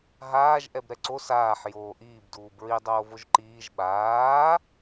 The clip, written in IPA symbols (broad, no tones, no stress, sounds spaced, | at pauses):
ɦ aː ʒ ʔ ɛ b ɾ ɛ ǀ o s aː ħ j oː ʔ iː b d uː b ɹ i dˤ oː v o ʒ ǃ iː ʒ ɓ aː